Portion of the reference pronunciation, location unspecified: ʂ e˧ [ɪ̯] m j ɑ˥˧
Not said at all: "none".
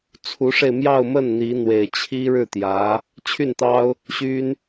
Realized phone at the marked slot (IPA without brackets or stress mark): ɪ̯